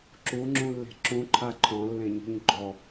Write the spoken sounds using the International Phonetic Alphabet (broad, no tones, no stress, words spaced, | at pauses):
ǁuŋ͡ǁũlːe̤ ǁũǃʰa ǃʰɔ̃lːẽɲṳɲ ɡ͡ǃɔ